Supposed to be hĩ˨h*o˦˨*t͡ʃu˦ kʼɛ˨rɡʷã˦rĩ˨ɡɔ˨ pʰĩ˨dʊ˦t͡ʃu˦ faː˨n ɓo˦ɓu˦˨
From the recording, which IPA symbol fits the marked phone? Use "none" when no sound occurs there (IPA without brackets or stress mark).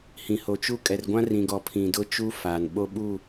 o˨